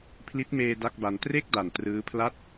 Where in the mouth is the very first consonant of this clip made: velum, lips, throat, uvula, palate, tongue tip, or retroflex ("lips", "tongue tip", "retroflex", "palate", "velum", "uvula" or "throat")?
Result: lips